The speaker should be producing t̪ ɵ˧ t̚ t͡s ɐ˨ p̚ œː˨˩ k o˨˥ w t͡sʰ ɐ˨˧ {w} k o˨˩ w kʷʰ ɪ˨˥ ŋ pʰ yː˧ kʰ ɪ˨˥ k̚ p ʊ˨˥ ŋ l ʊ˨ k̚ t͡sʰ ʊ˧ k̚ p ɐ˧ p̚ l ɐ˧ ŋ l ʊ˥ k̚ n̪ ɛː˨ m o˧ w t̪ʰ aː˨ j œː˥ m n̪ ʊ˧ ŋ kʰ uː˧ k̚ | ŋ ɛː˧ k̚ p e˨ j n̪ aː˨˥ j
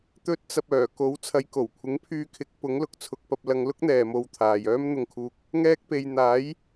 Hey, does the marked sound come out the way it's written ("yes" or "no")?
no